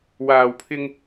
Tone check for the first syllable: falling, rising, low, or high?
low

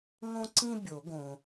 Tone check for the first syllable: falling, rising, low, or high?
high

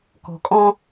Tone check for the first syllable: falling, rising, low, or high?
low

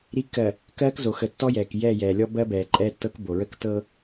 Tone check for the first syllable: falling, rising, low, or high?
rising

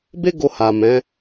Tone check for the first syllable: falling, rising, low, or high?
high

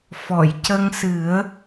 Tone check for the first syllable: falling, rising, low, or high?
low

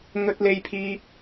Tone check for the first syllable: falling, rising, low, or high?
high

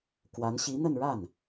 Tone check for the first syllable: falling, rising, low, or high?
rising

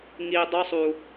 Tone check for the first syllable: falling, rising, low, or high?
low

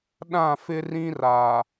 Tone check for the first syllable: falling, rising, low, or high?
falling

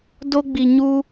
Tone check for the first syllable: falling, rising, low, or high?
high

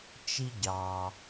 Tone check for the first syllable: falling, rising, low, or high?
high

